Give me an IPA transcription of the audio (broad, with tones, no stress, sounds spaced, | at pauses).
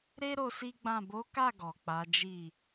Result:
ɾ e˦ ɾ o˧ s i˦ ɡ͡b ã˦˨ b o˨˦ k a˦˨ ɡ ɔ˨ k͡p a˨˦ d͡ʒ i˦˨